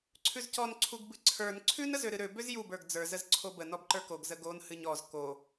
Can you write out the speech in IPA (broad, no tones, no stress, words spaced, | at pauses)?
ǀʰʉzcɔn ǀʰuɡbɨǀʰə˞n ǀʰʉn əzøɾɨɾø bøzjub ə˞ɡd͡zə˞ zəzǀʰobə nɔbǃə˞koɡ zəɡon hɨɲɔz ko